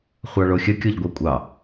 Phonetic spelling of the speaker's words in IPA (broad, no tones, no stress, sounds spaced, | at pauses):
χʷ ɑ ɭ o xʲ ə kʲ o ʎ ɡʷ ɑ kʷʼ ɑ